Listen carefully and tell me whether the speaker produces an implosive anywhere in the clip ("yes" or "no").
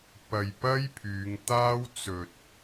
no